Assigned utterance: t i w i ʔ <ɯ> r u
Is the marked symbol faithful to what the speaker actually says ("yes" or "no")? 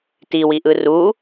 yes